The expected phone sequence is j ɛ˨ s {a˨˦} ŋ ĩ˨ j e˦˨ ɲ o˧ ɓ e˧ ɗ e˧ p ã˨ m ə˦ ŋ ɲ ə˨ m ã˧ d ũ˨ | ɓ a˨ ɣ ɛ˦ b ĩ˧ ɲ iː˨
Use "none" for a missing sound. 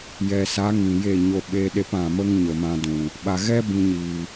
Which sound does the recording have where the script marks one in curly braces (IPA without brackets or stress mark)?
a˨˦